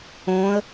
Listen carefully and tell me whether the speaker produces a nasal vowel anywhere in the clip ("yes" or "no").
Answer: yes